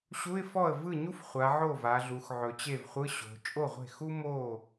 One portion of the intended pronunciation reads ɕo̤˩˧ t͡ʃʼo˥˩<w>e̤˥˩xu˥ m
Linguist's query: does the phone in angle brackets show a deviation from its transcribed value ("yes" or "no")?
yes